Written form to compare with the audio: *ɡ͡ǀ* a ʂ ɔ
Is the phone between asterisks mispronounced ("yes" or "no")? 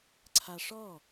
yes